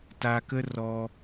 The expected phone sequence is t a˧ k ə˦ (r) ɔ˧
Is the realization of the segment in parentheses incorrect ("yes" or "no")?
no